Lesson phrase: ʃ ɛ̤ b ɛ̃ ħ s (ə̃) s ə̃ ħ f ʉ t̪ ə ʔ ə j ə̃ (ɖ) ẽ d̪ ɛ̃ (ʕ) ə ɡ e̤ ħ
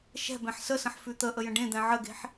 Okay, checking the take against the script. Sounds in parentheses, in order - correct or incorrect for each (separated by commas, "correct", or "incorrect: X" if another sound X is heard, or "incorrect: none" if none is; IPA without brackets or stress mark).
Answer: incorrect: ə, correct, correct